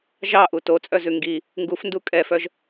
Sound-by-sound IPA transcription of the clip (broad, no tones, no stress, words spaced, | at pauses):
ʒɑʔu tot͡sʼœzʉ ŋɡi | ŋɡufndu kʼɛfœʒ